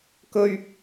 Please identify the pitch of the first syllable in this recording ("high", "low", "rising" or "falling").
high